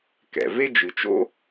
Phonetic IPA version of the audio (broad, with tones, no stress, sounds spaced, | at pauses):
k ɛ̰˩ v e˥ d͡ʒ ɨ˨ t͡ʃ o̰˥